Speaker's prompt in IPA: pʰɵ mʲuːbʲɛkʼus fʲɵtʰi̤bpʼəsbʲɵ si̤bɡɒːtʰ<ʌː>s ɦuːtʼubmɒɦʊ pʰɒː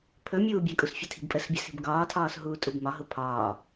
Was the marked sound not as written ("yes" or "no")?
yes